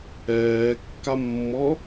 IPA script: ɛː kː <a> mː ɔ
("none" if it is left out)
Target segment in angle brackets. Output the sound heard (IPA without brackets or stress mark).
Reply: a